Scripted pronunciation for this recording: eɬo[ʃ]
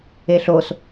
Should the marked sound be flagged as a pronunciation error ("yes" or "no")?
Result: yes